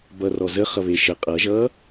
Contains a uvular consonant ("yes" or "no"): yes